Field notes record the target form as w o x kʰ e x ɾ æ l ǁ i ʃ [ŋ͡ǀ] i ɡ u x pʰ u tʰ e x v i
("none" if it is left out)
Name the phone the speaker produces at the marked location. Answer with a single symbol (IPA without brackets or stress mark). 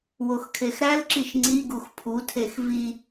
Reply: ŋ͡ǀ